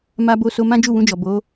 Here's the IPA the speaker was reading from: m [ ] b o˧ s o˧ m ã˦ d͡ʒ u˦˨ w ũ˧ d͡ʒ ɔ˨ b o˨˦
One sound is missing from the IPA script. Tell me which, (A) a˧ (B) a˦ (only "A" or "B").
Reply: A